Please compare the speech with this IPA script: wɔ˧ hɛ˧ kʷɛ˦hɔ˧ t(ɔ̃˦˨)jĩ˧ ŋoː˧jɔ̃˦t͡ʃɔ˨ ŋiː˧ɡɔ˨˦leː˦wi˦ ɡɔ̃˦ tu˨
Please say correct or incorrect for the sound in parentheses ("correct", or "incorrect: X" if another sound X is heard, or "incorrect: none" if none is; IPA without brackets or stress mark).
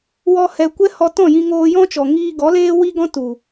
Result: correct